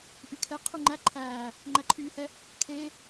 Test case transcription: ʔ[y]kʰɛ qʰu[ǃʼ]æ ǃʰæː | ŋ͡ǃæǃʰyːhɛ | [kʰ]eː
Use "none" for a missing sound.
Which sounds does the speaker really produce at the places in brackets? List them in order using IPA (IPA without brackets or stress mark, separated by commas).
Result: y, ŋ͡ǃ, kʰ